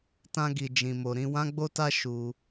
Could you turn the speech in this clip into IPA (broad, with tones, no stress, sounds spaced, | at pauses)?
t ã˧ ɡ i˨ d͡ʒ ĩ˨ m o˨ ɾ ĩ˧ w ã˦ ɡ͡b o˦ t a˦ ʃ u˧